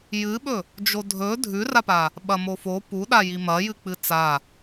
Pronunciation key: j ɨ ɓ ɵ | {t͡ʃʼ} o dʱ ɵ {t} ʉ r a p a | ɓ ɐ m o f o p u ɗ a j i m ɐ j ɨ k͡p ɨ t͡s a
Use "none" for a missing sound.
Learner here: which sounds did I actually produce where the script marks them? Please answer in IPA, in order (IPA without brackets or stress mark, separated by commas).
d͡ʒ, dʱ